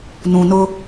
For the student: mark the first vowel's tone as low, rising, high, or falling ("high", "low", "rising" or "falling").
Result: low